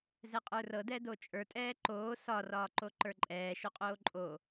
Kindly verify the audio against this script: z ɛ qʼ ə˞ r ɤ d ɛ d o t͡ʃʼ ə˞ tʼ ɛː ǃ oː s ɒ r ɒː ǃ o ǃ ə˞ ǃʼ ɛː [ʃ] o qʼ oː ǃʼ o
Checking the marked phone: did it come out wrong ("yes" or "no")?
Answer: no